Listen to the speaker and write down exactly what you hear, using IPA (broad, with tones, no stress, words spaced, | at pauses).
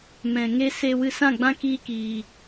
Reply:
mɛ̃˨ ŋe˧se˧ wɨ˧sã˦˨ɡ͡bã˦ kiː˦kiː˨